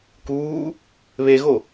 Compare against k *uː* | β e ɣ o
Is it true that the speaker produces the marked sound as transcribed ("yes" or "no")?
yes